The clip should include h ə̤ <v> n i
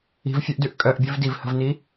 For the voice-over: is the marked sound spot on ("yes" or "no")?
yes